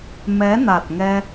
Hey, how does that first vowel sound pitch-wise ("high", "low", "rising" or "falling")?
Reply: rising